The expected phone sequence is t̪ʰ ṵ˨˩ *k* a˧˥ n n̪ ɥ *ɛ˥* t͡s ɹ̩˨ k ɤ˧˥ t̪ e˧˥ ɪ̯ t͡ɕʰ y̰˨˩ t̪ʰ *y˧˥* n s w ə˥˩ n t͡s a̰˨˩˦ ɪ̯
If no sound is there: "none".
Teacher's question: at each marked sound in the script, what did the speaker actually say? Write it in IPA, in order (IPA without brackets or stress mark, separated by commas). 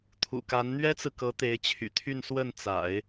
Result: k, ɛ˥, y˥˧